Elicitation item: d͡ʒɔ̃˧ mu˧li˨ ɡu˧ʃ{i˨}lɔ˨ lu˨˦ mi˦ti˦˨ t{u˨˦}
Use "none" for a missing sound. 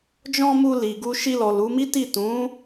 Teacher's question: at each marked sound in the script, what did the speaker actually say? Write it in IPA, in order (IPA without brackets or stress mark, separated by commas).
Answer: i˧, ũ˨˦